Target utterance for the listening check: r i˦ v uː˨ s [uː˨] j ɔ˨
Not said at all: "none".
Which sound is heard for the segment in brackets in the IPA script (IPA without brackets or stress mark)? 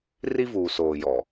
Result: oː˨